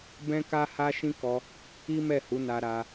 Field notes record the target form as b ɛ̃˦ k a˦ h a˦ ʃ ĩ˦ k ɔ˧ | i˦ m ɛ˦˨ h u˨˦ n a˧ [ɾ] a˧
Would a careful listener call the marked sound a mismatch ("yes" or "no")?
no